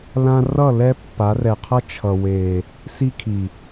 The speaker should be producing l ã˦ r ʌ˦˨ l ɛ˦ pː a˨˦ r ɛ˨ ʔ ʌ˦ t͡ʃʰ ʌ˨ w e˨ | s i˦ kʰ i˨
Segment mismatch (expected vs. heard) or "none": ʔ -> qʰ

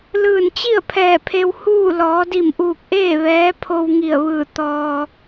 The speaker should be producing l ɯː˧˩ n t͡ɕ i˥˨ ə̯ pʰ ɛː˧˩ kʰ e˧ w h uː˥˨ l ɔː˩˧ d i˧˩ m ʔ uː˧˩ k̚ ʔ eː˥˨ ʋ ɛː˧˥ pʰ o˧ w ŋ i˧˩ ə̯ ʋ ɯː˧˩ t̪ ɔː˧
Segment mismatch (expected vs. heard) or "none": kʰ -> pʰ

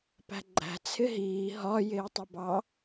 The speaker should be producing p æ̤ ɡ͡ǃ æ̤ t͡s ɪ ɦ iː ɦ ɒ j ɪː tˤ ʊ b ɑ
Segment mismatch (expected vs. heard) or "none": t͡s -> t͡sʰ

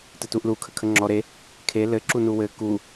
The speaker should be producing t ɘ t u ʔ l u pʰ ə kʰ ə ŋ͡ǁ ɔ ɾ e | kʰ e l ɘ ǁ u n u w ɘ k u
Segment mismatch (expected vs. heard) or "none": pʰ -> kʰ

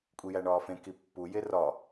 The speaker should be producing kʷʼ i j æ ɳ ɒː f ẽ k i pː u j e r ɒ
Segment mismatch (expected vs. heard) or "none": none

